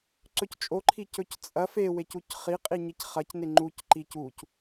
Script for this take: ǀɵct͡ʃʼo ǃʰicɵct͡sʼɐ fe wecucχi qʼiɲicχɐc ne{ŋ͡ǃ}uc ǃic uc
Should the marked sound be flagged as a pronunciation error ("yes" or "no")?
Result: no